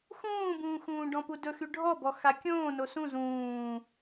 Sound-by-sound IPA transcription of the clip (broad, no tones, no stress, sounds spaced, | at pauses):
x ũː b ũː x ũː ɖ ɔ̃ p u d ɵ x y ɖʱ ɔ b ɔ x a kʲ õː n o s ũ z ũː